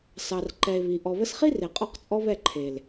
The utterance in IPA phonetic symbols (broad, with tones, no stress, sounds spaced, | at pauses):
s ɑ˨ r ǃ ɛ˨ e̯ β i˨ ʔ ɔ˨ β ə˧ s χ i˦ r e˨ qʼ ɔ˦ q t͡sʼ ɔ˦ β ɛ˦˨ ǃʰ e˨ l